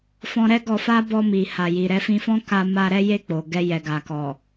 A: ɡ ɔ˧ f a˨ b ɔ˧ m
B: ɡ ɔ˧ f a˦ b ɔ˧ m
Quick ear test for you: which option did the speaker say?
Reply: B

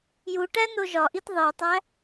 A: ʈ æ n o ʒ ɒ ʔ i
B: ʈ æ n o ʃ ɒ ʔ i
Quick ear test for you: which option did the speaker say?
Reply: A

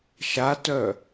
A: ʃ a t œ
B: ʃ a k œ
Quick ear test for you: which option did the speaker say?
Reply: A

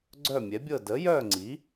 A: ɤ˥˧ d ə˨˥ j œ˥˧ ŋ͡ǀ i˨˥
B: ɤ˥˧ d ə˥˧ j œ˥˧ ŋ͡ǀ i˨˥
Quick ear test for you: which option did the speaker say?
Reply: A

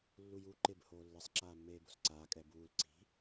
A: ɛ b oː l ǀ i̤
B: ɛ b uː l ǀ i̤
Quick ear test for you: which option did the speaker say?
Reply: B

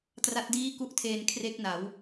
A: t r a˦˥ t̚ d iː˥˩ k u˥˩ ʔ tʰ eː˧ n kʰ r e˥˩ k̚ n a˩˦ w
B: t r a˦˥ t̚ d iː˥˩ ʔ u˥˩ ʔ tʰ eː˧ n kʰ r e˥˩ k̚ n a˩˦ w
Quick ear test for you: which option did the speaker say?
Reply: A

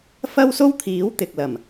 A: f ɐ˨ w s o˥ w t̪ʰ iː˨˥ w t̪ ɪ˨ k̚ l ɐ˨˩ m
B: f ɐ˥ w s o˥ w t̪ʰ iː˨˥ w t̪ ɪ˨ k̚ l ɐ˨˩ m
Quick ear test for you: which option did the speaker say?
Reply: B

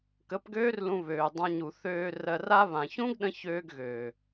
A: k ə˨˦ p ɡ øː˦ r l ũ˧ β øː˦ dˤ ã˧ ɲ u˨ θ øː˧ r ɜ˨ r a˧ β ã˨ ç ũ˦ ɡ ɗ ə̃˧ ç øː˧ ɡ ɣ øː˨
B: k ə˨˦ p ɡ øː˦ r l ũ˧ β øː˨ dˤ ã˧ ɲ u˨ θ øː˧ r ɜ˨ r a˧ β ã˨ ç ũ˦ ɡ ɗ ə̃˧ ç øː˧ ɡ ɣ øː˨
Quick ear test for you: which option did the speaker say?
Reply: B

